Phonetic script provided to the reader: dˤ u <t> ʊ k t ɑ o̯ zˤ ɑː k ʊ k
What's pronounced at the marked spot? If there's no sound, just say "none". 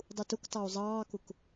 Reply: t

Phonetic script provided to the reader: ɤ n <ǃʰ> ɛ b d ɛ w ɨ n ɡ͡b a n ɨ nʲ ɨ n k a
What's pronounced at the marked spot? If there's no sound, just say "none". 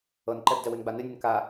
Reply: ǃ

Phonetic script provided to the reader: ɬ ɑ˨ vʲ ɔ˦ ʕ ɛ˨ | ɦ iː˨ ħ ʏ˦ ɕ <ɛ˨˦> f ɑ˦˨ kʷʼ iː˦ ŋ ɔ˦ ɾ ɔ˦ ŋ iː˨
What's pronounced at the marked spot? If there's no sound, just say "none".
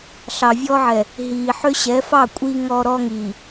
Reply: ɛ˨˦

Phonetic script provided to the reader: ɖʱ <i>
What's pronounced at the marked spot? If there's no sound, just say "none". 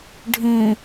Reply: ĩ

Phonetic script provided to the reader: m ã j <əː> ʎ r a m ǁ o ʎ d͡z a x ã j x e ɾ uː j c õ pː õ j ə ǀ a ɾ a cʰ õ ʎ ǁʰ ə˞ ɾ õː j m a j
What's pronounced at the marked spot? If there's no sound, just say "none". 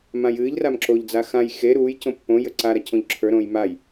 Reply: ɨː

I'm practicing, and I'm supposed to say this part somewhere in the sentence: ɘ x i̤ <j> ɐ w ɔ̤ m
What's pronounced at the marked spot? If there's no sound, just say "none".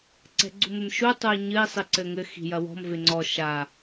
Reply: j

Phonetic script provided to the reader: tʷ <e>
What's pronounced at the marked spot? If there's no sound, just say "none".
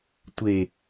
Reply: e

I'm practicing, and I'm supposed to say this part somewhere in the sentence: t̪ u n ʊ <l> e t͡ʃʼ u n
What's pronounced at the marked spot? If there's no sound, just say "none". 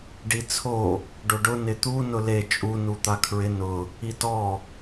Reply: l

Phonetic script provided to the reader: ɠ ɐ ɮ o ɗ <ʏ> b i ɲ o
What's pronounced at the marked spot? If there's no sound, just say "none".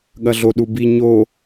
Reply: u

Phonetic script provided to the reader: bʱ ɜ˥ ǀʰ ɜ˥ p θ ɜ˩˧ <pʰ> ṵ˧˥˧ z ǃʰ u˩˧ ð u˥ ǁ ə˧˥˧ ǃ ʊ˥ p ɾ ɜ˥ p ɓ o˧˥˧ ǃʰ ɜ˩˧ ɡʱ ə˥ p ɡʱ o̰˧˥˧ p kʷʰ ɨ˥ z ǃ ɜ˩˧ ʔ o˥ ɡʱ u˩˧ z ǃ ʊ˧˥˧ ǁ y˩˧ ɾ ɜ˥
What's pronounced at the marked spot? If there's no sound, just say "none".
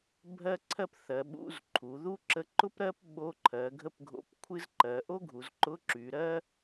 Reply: ɓ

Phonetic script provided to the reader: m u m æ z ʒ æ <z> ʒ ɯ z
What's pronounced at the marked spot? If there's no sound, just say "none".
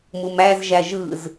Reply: none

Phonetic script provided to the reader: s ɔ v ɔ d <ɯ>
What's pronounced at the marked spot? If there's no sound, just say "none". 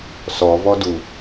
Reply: u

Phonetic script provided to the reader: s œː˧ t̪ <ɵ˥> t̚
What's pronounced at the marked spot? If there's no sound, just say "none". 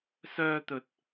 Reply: ɵ˨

